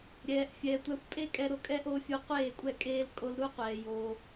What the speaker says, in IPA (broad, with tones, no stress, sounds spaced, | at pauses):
ɾʲ ɛː˨ ʔ fʲ ɛː˨ tʷ æ˧ xʷ pʼ e˦ kʼ ɛ˧ ɾ o˧ kʼ ɛ˦ ʔ o˧ fʲ u˧ qʷ eː˦˨ kʷʼ ɛ˦˨ kʼ eː˦ l kʼ o˧ l ɾ u˦ qʷ ɛː˨ j o˧